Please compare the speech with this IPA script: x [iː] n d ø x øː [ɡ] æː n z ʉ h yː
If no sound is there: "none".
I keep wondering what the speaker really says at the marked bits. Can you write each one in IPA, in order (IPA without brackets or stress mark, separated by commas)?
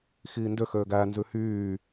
iː, ɡ